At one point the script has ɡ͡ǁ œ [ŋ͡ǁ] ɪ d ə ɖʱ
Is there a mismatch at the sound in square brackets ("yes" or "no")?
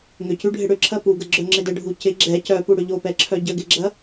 no